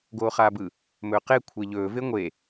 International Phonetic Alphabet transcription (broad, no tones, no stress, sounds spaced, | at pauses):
ɡ oː χ aː b ɯ | m ɵː q e kʷʰ e ʎ ɵː v e ŋʷ e